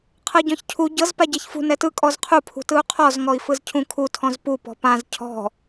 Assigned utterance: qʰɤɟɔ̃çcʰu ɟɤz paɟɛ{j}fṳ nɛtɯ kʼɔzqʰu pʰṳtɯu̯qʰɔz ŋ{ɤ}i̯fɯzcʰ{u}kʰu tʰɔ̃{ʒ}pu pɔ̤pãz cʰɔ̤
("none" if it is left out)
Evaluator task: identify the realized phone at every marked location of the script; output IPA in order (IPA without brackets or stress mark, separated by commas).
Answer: ç, ɔ, ũ, z